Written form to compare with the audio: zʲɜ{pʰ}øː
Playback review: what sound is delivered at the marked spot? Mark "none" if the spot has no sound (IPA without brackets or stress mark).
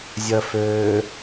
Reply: f